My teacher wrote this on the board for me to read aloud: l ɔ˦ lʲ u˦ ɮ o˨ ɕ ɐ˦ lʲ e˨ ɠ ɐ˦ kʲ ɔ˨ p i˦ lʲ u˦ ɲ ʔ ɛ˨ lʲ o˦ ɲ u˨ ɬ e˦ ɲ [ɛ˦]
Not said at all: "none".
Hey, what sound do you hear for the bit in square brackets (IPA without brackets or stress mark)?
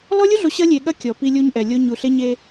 e˦